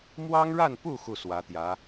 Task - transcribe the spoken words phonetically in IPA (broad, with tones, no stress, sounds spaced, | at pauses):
m w ɑ˥ ŋ ɻ a˥˧ n p u˥˧ x u˥˩ s w ä˧˥ t̪ j ä˧˥